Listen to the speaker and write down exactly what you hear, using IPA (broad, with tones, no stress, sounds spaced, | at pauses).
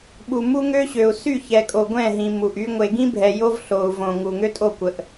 ɓ u˨ m u˦ ŋ ø˦ ɕ ø˨ u̯ s y˦˨ ç ɛ˨ kʼ o˨ ɡʷ ɛ̃˦˨ ɦ ĩ˨ m u˨ ʔ y˦ ŋʷ e˨ ɡ ĩ˦ bʱ ɛ˨ j o˦ v ɬ o˨ u̯ v õ˨ ŋ u˨ ŋ ø˦ tʼ o˦˨ kʷ ə˨ ʔ